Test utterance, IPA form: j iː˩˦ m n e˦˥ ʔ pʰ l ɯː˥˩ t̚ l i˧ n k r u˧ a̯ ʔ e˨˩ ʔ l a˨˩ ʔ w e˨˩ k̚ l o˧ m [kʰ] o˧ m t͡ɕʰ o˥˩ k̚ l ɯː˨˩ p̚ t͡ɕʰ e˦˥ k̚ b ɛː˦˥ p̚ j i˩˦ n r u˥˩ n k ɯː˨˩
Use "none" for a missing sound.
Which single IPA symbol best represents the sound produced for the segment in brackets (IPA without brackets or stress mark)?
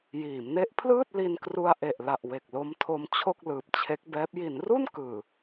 tʰ